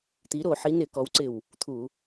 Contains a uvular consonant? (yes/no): no